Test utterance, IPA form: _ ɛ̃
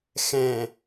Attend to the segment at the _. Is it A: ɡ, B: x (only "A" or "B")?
B